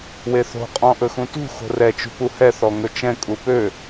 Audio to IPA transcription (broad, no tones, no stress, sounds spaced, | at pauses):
w e θ o̤ qʼ ɔ̃ ʔ ɵ x ũ t ṳ x o̤ r ɛ t͡ʃ ṳ p u h ɛ θ ɔ ŋ ɵ t͡ʃ ɛ̃ kʼ u p ø